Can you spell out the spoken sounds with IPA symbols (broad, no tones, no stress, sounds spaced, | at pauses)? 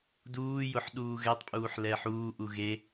d uː j ʊ ħ ɗ uː ɣ ɛ tˤ pʼ uː ħ l ɛː ħ uː ʔ u ɣ e